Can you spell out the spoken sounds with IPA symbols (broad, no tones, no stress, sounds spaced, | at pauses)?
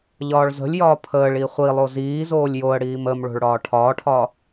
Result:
ʎ ɒː ɭ z ə̤ lʲ j ɒː pʰ əː ɭ i χʷ i lˠ o z iː z oː lʲ j o ə̯ ɽ iː m ə m ɭ o̤ ɭ ɽ ɒː ʈʰ ɒː ʈʰ ɒ